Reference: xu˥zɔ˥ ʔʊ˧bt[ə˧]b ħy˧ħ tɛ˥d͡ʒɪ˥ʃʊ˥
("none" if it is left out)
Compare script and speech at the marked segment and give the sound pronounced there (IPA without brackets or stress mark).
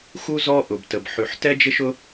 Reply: ə˧